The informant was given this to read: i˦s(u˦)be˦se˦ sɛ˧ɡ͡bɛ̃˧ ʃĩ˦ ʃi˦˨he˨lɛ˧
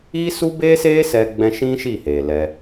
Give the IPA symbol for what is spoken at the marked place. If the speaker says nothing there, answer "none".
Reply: u˦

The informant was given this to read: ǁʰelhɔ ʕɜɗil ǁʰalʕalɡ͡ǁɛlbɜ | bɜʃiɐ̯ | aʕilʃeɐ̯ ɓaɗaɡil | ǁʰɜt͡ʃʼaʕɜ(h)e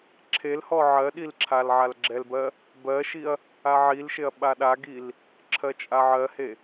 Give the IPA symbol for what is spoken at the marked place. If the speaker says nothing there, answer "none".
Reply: h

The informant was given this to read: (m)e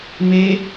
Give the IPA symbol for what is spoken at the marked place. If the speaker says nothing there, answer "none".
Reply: m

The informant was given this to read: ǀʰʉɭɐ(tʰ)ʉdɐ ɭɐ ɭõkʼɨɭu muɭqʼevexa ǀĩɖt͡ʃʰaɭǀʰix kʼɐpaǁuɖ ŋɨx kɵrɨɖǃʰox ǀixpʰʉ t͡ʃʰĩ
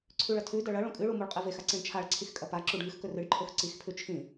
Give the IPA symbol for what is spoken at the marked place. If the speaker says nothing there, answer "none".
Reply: tʰ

